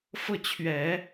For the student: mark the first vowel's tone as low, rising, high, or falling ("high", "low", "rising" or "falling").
falling